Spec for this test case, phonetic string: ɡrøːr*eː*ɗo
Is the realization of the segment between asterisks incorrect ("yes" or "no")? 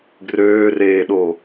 no